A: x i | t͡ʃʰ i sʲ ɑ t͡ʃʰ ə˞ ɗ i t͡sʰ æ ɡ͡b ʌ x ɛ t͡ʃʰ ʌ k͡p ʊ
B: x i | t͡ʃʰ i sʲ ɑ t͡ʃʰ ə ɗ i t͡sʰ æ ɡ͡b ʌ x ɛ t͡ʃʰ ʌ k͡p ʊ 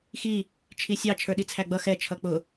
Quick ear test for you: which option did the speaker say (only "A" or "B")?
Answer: A